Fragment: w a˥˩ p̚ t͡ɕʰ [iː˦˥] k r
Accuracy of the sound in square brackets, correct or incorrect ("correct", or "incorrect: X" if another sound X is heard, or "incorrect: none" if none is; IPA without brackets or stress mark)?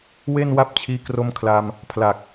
correct